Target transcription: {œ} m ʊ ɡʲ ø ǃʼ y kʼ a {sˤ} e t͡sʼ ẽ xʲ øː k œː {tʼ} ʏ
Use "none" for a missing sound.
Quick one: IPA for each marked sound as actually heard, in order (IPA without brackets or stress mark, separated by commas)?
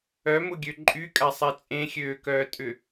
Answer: œ, sˤ, tʼ